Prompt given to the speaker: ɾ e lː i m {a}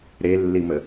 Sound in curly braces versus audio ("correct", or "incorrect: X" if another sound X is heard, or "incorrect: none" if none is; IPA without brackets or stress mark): incorrect: ə